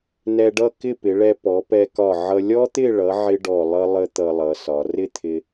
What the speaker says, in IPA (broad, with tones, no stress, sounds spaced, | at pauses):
n ɛ˧ ɖ ʌ˥˧ k ɪ˥˧ p ɪ˩˧ ɭ ɛ˧ p ɔ˩˧ p ɛ˧ k ɒ˧˩ ʕ ʌ˧ lʲ ɔ˥ t̪ ɪ˥˧ ɭ ʌ˩˧ ʕ ɪ˥ ɖ ɔ˧˩ lˠ ʌ˥ lˠ ə˥ t̪ ʌ˧ lˠ ʌ˩˧ s ɒ˩˧ r ɪ˥˧ t̪ʰ ɪ˧